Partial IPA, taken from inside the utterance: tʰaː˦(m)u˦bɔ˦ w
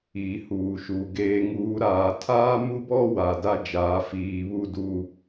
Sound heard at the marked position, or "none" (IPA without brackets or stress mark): m